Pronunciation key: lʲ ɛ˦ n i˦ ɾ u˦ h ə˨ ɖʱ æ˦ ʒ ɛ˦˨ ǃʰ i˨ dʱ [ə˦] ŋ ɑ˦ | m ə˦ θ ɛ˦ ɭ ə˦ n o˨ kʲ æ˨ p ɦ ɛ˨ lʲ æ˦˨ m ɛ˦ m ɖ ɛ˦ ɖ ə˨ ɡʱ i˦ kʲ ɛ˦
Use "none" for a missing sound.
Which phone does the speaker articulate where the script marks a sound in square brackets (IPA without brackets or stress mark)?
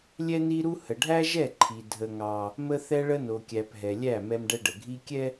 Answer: ə˦